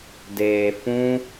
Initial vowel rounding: unrounded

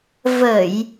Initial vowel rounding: unrounded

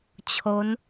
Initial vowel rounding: rounded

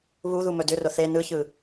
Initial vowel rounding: rounded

